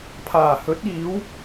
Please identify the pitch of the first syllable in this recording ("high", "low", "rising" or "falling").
low